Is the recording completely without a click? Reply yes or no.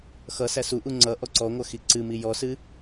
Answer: no